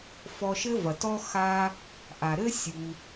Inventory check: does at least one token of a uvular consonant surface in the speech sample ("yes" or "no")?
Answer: no